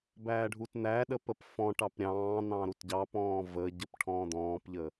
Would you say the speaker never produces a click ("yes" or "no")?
yes